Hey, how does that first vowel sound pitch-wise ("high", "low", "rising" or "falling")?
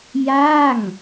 falling